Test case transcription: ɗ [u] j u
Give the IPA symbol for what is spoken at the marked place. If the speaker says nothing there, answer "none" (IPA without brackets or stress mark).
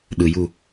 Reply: ɯ